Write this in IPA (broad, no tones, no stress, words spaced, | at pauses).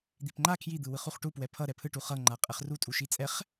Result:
d̪ipŋ͡ǃa kʰjid̪ɯwɯχ uχʈupwɛ pʰʌ ɾɛpʰɯʈu χʌŋ͡ǃa qʼɛχrutʼu ʃit͡sʼɛχ